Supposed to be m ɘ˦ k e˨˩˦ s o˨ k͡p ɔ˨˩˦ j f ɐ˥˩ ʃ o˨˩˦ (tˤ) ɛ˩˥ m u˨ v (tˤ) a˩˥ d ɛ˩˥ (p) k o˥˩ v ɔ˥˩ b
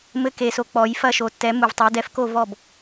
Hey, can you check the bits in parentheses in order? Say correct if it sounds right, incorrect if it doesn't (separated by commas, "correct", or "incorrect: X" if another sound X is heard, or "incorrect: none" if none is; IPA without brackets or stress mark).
incorrect: tː, correct, incorrect: f